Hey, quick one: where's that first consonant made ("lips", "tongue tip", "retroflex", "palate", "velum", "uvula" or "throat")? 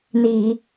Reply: tongue tip